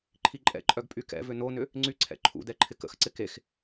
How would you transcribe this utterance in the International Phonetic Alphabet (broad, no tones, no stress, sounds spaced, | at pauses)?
ǃʰ i ǃʼ ɛ̰ ǃʼ œ ɡ pʼ y k ɛ̰ v ʏ n o n ʏ | ŋ͡ǀ y ǀʰ ɛ̰ ǃʰ ṵ d ɛ ǃʰ ɪ k ə̰ x ǀ ɪ k e x